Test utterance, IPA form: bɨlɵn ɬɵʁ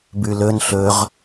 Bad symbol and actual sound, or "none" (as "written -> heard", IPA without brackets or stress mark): ɨ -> ʉ